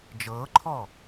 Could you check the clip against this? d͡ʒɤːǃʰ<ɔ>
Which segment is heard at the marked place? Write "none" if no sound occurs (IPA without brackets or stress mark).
ɔ